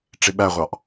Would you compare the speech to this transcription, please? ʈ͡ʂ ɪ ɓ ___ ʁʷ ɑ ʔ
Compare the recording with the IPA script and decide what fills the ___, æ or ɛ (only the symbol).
æ